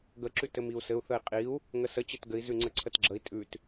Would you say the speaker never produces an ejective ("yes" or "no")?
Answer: no